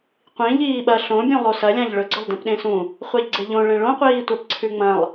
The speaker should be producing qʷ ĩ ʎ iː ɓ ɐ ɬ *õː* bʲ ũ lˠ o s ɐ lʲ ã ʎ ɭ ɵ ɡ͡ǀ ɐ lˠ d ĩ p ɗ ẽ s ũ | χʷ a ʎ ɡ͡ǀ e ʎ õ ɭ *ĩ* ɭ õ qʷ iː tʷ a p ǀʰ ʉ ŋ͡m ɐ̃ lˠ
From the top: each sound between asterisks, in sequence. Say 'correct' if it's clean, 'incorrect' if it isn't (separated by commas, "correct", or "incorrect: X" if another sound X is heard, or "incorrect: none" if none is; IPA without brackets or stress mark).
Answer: incorrect: õ, incorrect: ẽ